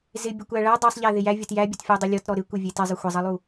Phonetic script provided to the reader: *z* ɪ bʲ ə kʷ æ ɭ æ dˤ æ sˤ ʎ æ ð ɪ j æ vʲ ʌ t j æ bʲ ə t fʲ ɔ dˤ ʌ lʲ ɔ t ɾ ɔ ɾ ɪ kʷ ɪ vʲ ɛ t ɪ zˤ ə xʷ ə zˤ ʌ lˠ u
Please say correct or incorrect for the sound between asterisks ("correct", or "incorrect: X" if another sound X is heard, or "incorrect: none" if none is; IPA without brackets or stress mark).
correct